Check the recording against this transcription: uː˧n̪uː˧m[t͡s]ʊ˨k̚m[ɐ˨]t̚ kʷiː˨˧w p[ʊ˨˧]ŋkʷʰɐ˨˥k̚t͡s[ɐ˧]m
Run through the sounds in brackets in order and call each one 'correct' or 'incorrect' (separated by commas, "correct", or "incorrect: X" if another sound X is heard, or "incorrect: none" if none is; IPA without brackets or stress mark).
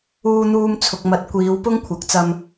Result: incorrect: t͡sʰ, incorrect: ɐ˨˥, incorrect: ʊ˥, correct